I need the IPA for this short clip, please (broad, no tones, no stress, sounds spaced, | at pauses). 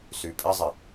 s y pʼ ɪ zˤ ɪ